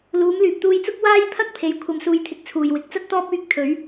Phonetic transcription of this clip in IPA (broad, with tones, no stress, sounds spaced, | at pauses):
l uː˨˧ m l yː˨ p̚ t̪ uː˧ j t͡s ʊ˥ k̚ w aː˥ j pʰ ɐ˥ k̚ pʰ e˨ j kʷʰ ɐ˧ m s uː˧ j t̪ʰ ɪ˧ k̚ t͡sʰ uː˨ j w ɪ˨˥ k̚ t͡s ɐ˥ t̚ t̪ ɔː˥ p̚ yː˧ k̚ t̪ʰ ɵ˨˥ ɥ